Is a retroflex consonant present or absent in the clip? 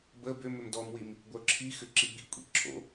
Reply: absent